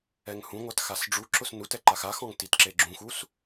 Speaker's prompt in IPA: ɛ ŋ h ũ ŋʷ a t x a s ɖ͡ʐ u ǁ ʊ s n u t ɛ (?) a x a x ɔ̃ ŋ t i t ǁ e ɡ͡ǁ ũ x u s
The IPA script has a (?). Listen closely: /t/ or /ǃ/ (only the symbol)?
ǃ